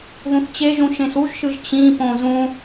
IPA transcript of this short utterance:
ð ũ θ t͡ɕ e ʒ ũ ʃ ẽ s u ʒ ʃ ɯ ʒ t͡ɕ ĩ p õ z ũ

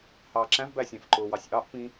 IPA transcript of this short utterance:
h ɑː ǁ æ̃ v b æ sʲ æ̃ f ǃ ʊː w ɑ sʲ ʔ ɑ ʔ p ĩ

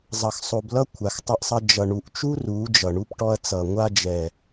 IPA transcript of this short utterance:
zˤ ʌ˧ x sˤ o˧ b l ʌ˦ kʷʰ a˨ x tˤ ʌ˧ ʔ sˤ ʌ˧ d͡ʒ ʌ˨ ɳ u˨ ʔ t͡ʃ u˦ r u˨˦ d͡ʒ ʌ˨ ɳ u˧ p ʈ ɔ˧ ɐ̯ t͡s ʌ˨ ŋʷ a˧ d͡ʒ ɛ˨

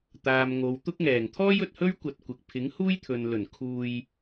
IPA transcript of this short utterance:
t̪ aː˨ m ŋ o˨ w t̪ ʊ˥ k̚ ŋ ɛː˨˩ ŋ t̪ʰ ɔː˥ j ɵ˨ t̚ h ɵ˥ ɥ kʷ ɐ˧ t̚ kʷ ɪ˨ k̚ pʰ ɪ˨˥ ŋ h uː˥ j t̪ʰ ɵ˨ n l ɵ˨˩ n kʰ uː˧ j

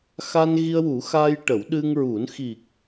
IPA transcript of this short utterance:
x a˧ n ɣ i˧ ə̯ w u˨˩˦ x a˧ j ʈ ə˨˩˦ w ɗ ɨ˧ ŋ ɹ u˨˩˦ n x i˨˩ k̚

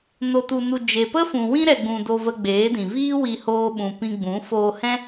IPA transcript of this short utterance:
n o˧ t u˧ n u˧ d͡ʒ e˨ p ə˦ f ũ˨ w ĩ˦ ɾ ɛ˧ ɡ͡b ũ˧ d o˧ v ə˧ ɡ͡b eː˨˦ d ĩ˨ v iː˦ w i˧ h oː˧ ɓ ũ˨ p ĩ˧ ɡ͡b ũ˨˦ f oː˧ h ɛ̃˦

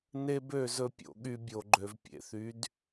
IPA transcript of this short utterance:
n e˦ b ø˦˨ z ɵ˦ pʲ o̰˧ ɠ y˧ bʲ o˨ ɡ͡ǃ ø˨ v pʲ ḛ˨ θ y˨˦ d

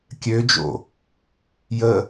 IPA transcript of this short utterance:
kʲ ø d͡ʒ o̰ | j ə

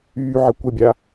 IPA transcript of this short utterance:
yː ʕ ə kʷ ə bʲ a

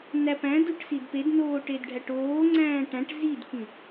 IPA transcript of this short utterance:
n æ p æ̃ d u ʈ s i d p e d n oː ʈ e d ɖʱ æ ʈ oː ŋ͡ǀ æ̃ː ʈ æ̃ ʈ z i d k ĩ

